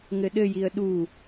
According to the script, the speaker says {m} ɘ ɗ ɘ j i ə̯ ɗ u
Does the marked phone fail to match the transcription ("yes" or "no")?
yes